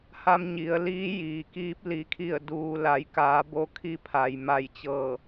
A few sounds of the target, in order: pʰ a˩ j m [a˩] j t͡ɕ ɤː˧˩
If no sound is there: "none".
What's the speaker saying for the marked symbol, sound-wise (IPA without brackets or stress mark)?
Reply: a˧˩